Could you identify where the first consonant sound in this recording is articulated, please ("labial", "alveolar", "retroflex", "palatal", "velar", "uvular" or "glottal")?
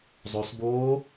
alveolar